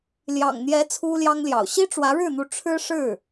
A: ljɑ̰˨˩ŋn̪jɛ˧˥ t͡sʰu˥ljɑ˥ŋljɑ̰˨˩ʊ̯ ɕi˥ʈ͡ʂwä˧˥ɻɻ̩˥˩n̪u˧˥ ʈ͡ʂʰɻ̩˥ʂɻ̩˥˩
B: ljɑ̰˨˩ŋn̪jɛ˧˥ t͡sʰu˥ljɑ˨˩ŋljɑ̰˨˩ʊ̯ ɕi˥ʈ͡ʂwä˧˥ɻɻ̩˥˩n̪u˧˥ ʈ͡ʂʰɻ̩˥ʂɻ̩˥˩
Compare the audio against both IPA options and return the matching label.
A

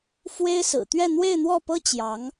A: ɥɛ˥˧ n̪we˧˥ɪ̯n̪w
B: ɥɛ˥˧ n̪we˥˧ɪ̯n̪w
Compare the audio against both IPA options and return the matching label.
B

